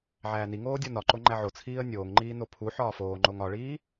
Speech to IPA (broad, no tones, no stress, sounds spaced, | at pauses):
ʕ æː n i ŋ oː dʲ ɒ n ɒ ǃ o ŋ͡ǃ æ ʕ o t͡sʰ iː ə̯ nʲ oː ŋ ŋ͡ǃ iː n o pʰ u ħ ɒː f oː ŋ͡ǃ o ŋ ɒ ɭ iː